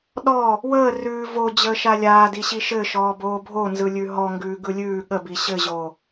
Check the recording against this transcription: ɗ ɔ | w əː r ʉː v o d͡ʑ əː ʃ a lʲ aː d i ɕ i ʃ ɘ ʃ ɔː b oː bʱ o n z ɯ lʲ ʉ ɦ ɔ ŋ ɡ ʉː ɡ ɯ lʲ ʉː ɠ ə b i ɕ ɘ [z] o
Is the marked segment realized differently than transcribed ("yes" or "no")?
yes